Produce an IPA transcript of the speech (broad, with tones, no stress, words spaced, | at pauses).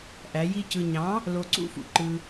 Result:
ʔæ˨˦ji˦cɯ˧ ɲɑ̃˨˦ | lo˧ǀṵ˦fṵ˨ ǃɯ˧